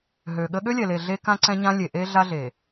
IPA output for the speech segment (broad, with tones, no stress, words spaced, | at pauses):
ɦø˨ɠə˦ ɠø˦lʲɛ˨le˨ ɮe˦kã˦ǀɛ̃˦ɲã˦ lʲe˨ʔe˦ɮa˦ɮe˨